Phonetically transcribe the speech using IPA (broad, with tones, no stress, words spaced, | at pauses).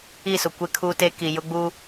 i˦˨sʊ˨ kʷe˦kʰuː˦te˦ ki˨jʊ˦ɡ͡bu˦